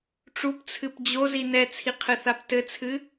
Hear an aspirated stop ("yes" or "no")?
yes